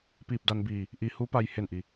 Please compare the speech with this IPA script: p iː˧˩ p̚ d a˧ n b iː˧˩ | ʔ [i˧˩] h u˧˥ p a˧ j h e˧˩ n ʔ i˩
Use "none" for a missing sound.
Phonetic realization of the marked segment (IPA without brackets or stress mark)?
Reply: i˧˩